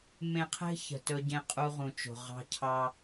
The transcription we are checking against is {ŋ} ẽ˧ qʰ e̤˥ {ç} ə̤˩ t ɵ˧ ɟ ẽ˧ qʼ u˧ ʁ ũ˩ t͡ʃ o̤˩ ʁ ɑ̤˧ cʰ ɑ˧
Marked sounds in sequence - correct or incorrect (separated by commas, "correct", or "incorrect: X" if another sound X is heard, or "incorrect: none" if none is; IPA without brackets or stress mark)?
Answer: incorrect: m, correct